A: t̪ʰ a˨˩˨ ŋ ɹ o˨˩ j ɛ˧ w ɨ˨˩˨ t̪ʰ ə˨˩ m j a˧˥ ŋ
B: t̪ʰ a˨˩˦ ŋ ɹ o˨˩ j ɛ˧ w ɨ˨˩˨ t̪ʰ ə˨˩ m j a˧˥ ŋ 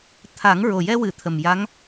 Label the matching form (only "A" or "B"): B